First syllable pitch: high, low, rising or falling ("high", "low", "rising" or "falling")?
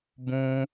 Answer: high